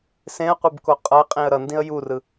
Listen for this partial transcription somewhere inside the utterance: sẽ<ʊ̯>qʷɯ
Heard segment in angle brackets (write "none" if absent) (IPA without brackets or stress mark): ə̯